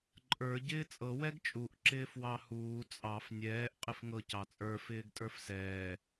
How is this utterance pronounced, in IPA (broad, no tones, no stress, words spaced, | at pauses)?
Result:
ǃʼə˞ ɟɪːt͡sʼɤ wɛɡt͡ʃʼuʔ ǁɪːfwɑhuː t͡sʼɑf nʲɛːʔ qʼɪfŋɤ cɑt͡sʼə˞ fɪːɡtʼə˞fsɛː